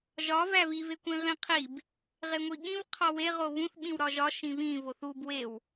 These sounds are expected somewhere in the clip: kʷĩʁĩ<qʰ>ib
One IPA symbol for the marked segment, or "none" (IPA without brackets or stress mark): qʰ